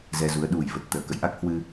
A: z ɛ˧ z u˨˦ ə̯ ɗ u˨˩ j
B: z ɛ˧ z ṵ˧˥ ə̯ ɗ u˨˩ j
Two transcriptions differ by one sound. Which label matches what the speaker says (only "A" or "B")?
A